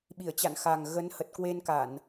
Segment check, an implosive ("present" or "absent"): present